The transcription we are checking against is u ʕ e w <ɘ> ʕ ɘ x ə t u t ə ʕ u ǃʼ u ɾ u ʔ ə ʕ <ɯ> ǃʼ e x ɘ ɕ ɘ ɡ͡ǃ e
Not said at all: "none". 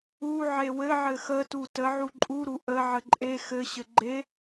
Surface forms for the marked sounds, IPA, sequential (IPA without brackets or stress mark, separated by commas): ɘ, ə